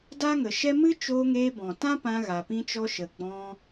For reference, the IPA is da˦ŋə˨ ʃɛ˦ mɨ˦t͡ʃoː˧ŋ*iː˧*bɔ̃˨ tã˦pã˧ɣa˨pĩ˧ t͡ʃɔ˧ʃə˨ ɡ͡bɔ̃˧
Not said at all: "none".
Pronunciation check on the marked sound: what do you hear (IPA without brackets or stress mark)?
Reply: eː˧